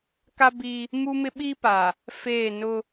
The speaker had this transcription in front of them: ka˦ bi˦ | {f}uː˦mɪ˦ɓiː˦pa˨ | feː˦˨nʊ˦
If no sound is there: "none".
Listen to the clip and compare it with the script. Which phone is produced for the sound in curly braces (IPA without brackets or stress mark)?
m